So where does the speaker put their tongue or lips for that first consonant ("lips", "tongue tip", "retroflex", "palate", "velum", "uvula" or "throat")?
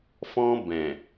lips